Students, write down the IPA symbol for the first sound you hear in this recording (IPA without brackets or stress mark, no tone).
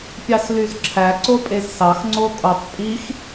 pʲ